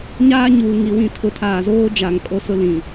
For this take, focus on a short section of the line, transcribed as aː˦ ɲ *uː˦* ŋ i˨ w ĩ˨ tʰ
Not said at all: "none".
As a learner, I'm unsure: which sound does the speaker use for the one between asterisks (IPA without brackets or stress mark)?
uː˨